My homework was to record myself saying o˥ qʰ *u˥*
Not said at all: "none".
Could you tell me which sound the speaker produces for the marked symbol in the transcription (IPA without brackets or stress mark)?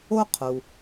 u˩